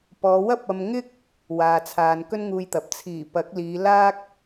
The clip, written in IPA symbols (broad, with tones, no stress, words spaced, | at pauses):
pɔː˨˧wɐ˥p̚ɐ˧m ŋɪ˥k̚ | waː˨t͡sʰaː˨n kɵ˥nŋuː˧jt̪ɐ˨p̚ t͡sʰiː˨˩ pɐ˨˥k̚liː˨˧ laː˥k̚